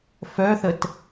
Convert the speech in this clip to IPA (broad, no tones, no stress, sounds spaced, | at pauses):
f œ θ ə t